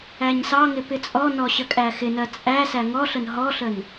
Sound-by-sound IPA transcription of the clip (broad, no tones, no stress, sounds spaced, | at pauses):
æ ɲ s ɑ ŋ ɪ p ɪ t͡sʼ ɔ n ɔ ɕ ə kʼ æ x ɪ n ɜ t͡sʼ æ s æ ŋ ɔ ɬ ə n ɦ ɔ ɬ ə n